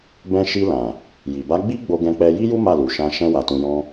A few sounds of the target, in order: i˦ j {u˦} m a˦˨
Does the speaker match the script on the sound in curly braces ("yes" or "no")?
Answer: yes